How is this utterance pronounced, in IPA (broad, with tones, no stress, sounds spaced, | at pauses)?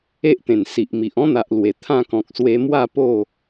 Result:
e˦ ʔ t̪ ẽ˨˩ n s i˨ ʔ m i˨ ʔ ɔ̃˦ n̪ a˨ ʔ l w e˨˩ t̪ʰ ã˥˧ k ɔ̃˨ k̚ s w e˧ m w a˥˧ p o˥˧